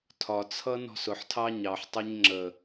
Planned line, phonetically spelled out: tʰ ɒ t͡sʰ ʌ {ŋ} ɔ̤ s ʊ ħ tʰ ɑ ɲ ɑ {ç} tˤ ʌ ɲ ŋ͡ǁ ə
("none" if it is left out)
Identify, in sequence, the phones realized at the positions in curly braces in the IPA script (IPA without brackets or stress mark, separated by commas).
n, ħ